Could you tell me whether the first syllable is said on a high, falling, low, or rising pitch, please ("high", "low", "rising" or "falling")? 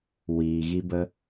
low